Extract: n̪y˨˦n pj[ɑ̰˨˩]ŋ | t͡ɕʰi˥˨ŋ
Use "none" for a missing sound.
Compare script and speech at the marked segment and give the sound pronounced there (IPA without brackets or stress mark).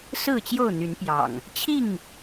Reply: ɑ̰˨˩